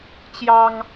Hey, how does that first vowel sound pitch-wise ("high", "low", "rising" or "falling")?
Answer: high